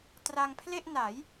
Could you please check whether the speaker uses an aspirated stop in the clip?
yes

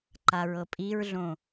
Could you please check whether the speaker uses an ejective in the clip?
yes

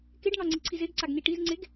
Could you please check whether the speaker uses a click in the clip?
yes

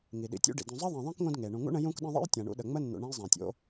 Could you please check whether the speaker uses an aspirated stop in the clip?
no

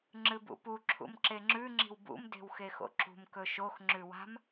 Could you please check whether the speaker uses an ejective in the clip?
no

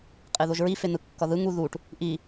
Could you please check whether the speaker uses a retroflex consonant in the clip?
yes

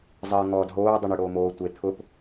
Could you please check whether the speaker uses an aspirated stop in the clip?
yes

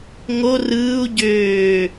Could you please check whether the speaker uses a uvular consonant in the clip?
no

